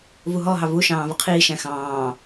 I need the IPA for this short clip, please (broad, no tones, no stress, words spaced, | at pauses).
vuɦɔɦɑ vuʃɑ̃ː vəqʰiːʃæ̃ xɑ̃ː